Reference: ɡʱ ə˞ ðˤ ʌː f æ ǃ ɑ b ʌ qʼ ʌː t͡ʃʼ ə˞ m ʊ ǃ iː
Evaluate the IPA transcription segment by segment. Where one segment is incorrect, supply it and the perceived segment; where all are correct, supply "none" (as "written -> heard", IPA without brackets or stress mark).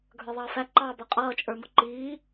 none